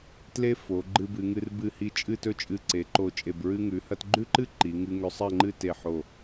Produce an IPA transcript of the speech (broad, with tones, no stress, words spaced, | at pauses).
tle˥fo˩˧ ɡ͡ǃɨ˧bɨ˩˧ŋɨ˧r bɨ˧˩hi˧˩ t͡ʃʼɨ˥˧tɵ˥˧ t͡ʃʼɨ˧˩ǀe˩˧ ǃo˧˩t͡ʃʼe˧˩b ɹɨ˧ŋʉ˩˧ hɐ˥t ɡ͡ǃʉ˥ǃɨ˥ ǃi˩˧ ŋɨ˧ ŋɵ˧sˤɐ˥˧ŋ͡ǃɨ˥˧ te˧˩ħo˧˩